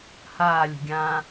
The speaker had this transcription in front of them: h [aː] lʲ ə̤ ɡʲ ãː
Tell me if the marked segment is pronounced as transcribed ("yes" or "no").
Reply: yes